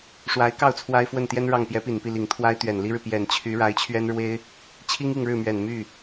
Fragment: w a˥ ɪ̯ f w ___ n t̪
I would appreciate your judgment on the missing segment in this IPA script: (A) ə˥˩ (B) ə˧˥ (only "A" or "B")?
A